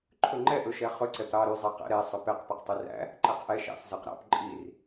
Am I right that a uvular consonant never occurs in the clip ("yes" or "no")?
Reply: no